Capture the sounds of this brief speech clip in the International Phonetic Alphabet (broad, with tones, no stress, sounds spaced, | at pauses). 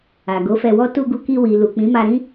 a˨ ɡ o˨˦ f ɛ˧ w ɔ˦ t u˧ ɡ u˧ k i˧ w i˨ l u˨ k͡p ĩ˨˦ m a˧ ɾ ĩ˦